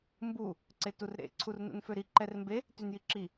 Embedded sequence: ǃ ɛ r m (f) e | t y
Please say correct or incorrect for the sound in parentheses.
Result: incorrect